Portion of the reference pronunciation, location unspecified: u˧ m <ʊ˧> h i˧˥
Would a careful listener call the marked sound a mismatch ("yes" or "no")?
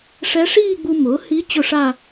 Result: yes